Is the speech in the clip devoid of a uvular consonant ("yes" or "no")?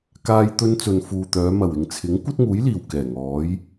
yes